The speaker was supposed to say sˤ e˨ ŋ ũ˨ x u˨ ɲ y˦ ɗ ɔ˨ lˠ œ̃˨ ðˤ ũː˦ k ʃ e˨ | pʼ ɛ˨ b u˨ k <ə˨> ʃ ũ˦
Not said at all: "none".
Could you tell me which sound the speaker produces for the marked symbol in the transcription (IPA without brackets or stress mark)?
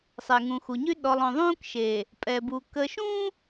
ə˨